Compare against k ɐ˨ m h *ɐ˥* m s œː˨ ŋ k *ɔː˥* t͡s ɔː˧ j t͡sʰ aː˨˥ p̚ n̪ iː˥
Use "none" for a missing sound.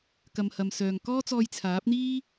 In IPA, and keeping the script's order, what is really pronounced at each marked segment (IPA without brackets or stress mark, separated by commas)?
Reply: ɐ˨, ɔː˥